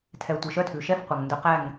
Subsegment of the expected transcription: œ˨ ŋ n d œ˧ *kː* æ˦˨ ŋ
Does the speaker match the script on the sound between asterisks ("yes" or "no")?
no